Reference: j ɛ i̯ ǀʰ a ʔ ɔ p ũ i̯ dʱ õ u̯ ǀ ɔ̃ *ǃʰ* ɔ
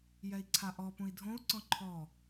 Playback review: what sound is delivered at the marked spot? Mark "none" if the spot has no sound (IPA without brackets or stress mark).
ǃʰ